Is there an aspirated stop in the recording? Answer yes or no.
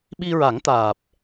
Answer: no